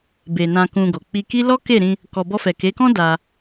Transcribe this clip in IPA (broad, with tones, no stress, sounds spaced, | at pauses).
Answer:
b e˨ n ã˧ k ũ˧ ɡ o˨ k͡p i˧ k i˦ l ɔ˦ k e˦˨ ɾ ĩ˧ | k ɔ˧ b ɔ˧ f ɛ˨ k e˨˦ k ɔ̃˦ d a˧